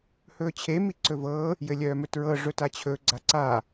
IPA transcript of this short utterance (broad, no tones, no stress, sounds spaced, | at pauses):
h ɵː t͡ɕʰ e m i ǀ ɵ v ɤː | j ɘ lʲ œː m ɵ t ɹ ɤ ʐ ɵ t a t͡ɕʰ ɵ ɡ͡ǀ a ǀ aː